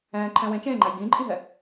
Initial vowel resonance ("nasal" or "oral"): nasal